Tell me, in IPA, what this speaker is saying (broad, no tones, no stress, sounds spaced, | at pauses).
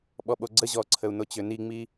ɓ ɔ ɓ o ɡ͡ǀ ə ʑ ɔ ǀʰ ə u̯ n o t͡ɕ ø n i ŋ͡m i